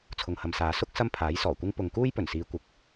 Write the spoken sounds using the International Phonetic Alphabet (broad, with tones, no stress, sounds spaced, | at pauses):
t͡sʰ ʊ˨ ŋ h ɐ˨ m s aː˨˧ s ʊ˥ k̚ s ɐ˥ m pʰ aː˨˥ j s ɔː˨˩ kʷ ɪ˥ ŋ p ʊ˨ ŋ k uː˥ j p ɵ˨˩ n s iː˨˧ kʷ ɪ˨ k̚